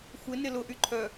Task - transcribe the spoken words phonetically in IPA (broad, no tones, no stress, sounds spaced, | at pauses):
xʷ ɪ n ɪ l ʊ ʔ y ǃʰ œ